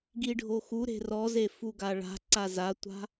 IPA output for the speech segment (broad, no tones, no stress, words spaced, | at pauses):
ɡiɖʱoxuɾe̤ rɔze fuɡaɭa̤ǀa zatʷa̤